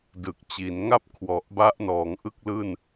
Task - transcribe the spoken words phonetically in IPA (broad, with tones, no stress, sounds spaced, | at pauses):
d ɯ˨˩ k̚ t͡ɕ i˩˦ n ŋ a˥˩ p̚ kʰ w ɔ˨˩ ʔ b a˦˥ ʔ n ɔː˩˦ ŋ ʔ ɯ˥˩ k̚ l ɯː˥˩ n